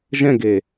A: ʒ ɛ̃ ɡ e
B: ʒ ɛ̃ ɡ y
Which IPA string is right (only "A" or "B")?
A